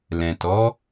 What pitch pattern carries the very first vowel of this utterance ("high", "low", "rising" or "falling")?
low